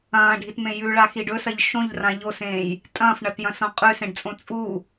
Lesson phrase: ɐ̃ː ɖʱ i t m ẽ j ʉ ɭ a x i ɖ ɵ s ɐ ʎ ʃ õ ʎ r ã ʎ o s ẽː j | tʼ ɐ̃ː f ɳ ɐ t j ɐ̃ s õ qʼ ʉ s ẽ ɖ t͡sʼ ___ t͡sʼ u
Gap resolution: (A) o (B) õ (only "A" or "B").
B